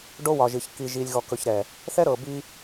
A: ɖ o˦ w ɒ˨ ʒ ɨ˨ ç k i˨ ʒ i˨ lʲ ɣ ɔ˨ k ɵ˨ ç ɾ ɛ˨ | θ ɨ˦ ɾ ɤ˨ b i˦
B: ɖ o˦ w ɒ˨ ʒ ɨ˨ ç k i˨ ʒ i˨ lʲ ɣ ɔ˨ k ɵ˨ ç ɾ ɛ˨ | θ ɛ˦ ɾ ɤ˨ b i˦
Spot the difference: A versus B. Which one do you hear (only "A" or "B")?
B